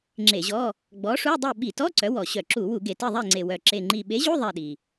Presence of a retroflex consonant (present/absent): present